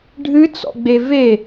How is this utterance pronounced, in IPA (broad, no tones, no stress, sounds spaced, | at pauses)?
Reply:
ɖʱ ɨ t͡s ɔ̰ ɡ͡b e v e